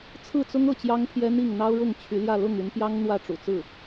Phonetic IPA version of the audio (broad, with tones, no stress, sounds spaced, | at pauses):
t͡sʰ ɹ̩˥˩ t͡s ʊ˥ ŋ ɤ˥˩ t͡ɕ j ɑ˥ ŋ pʰ j ɛ˥ n̪ i˥˩ ŋ n̪ ɑ˥ ʊ̯ ɻ ʊ˥˩ ŋ t͡ɕʰ y˧˥ l j ä˥˧ l ʊ˥˩ ŋ y˧˥ n p j ɑ˥ ŋ n̪ w ä˥˩ ʈ͡ʂ ṵ˨˩ t͡s ɹ̩˥˩